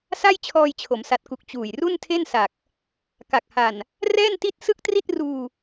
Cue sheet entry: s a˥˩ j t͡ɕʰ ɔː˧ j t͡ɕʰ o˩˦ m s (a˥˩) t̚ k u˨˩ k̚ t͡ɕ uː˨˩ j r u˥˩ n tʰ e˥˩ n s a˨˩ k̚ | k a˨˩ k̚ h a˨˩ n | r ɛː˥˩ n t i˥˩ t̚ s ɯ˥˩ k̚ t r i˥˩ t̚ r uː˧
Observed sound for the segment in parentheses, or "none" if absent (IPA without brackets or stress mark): a˨˩